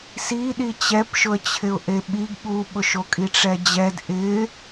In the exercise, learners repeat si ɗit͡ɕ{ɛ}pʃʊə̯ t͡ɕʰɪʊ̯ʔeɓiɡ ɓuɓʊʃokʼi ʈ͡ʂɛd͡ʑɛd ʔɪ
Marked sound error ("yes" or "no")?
no